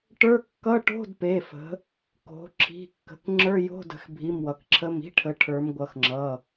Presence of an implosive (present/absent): absent